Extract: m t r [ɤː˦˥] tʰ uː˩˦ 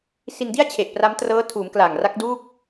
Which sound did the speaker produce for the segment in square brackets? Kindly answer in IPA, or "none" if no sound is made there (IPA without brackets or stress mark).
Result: ɤː˦˥